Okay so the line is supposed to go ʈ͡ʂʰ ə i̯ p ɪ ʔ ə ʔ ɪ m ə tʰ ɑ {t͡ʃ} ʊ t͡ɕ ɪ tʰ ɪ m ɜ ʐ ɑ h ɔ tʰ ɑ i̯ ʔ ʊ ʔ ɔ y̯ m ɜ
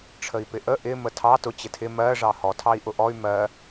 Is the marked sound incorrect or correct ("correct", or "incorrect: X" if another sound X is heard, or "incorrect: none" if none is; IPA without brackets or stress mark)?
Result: incorrect: t